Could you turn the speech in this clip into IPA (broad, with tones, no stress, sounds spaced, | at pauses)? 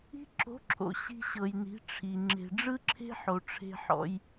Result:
i̤˧ ǁ o̤˨˦ ǁʰ o̰˨ ɕ i̤˧ ɕ ɤ˨ j n i̤˨˦ ʈ͡ʂʰ i˨ ŋ͡ǁ e̤˨ ɖ͡ʐ ɯ˦ ǁʰ e̤˦ ħ o˨ ʈ͡ʂʰ e̤˧ ħ ɔ̰˧ j